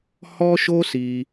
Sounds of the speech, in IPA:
h ɔ˦ ʃ o˦ s i˧

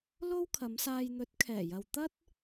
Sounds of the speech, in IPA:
l o˥ w kʰ ɐ˨˧ m s aː˧ j n̪ ɵ˨˥ t̚ kʰ ɛː˨˩ j ɐ˨ w t̪ ɐ˥ t̚

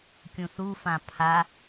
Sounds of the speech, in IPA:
kʲ ũ θ u f ã pʰ a

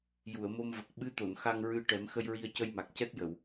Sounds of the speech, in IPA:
j u˨˩˨ ə̯ m o˧ m v ə˨˩ k̚ ɓ ɨ˧˥ t̪ o˨˩˨ n x a˧ ŋ ɹ ɨ˧ ʈ ɛ˨˩˦ m x ə˧ j ɹ i˧ ə̯ c ə˧ j m a˨˩ k̚ c ɛ˦˥ t̚ j ə˨˩˨ w

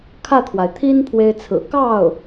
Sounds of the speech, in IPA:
kʰ ä˥˩ t̪ʰ w a˩ ɪ̯ t̪ʰ i˥ n pʰ w e˥ ɪ̯ t͡sʰ ɹ̩˨˩ k ɑ˥˩ ʊ̯

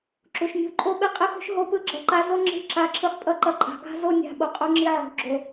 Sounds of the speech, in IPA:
ǁ u˨ ʃ nʲ o̤˦˨ ǃʼ o˦ ɓ e˦ qʼ i˦ x o̤˦ ʃ ɦ o˧ p ɯ˧ ɡ͡ǁ ʌ˨ ǃ a˧ z o˦ ŋ͡ǁ e̤˦˨ ǁ a˧ ǁʰ ɯ˧ χ pʼ ʌ˦ ǃ ʌ˧ ǃʼ a̤˨ ɡ a̤˦ z o˧ nʲ a̤˨ ɓ o˨ qʼ u˧ ŋ͡ǁ i˧ ʕ o̤˨ ɡ͡ǁ o˨

